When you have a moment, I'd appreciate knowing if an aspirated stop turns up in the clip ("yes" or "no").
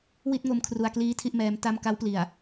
yes